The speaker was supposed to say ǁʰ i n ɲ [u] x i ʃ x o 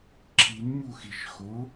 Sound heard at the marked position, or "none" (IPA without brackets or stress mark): u